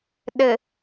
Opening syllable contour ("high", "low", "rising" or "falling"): low